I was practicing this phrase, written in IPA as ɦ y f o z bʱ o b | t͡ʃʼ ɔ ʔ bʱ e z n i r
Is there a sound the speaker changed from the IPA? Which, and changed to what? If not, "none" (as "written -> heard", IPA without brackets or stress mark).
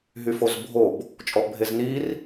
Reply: none